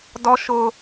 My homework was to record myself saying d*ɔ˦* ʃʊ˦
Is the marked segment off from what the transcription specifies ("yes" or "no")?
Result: no